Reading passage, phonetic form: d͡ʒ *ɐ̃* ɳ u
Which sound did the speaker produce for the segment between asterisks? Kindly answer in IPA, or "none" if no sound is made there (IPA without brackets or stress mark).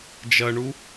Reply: ɐ